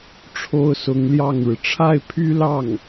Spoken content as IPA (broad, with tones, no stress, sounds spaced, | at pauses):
ʈ͡ʂʰ o˥ ʊ̯ s ʊ˧˥ ŋ l j ɑ˥˩ ŋ ɻ ɻ̩˩ ʈ͡ʂʰ a˥˩ ɪ̯ pʰ y˥ l ɑ˥˩ ŋ